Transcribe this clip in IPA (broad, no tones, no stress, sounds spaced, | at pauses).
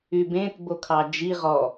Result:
y b ẽ t b o kʰ ɑ d͡ʒ i ʁ ɔ